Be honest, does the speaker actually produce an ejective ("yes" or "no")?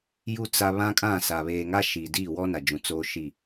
yes